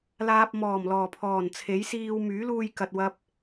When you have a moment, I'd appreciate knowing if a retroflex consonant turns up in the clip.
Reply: no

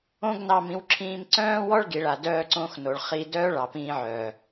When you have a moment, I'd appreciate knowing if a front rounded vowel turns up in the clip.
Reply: yes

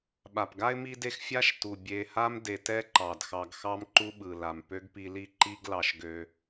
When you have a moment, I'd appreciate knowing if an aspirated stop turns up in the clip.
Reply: no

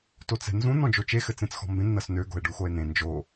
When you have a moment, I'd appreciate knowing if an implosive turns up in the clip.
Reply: no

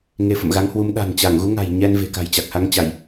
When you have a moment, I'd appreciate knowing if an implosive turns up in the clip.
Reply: yes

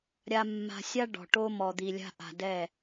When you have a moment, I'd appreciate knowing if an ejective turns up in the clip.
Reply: no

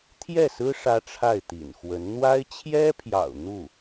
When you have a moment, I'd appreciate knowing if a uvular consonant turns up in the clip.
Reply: no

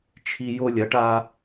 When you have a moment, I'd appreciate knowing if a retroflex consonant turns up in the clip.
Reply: yes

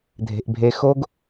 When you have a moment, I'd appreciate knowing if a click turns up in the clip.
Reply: no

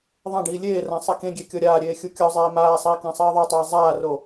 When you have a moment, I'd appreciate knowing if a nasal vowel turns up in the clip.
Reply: yes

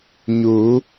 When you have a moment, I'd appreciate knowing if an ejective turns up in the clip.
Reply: no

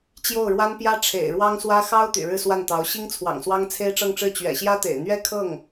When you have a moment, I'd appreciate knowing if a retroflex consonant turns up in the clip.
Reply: yes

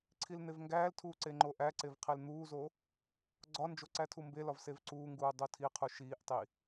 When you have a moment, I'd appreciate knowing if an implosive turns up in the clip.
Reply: no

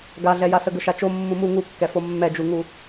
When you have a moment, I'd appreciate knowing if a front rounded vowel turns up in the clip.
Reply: no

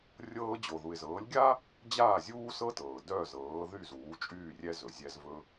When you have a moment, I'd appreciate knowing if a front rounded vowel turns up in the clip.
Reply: yes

